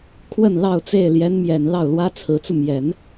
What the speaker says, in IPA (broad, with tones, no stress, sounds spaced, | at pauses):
kʰ w ə˥˧ n l ɑ˥˧ ʊ̯ t͡s e˥˩ ɪ̯ l j ɛ˧˥ n m j ɛ˨˩ n l ɑ˥˩ ʊ̯ l w ä˥ t͡sʰ ɹ̩˧˥ t͡s u˧ m j ɛ˨˩˦ n